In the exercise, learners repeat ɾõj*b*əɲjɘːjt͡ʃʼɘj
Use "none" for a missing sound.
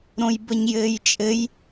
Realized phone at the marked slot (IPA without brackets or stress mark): b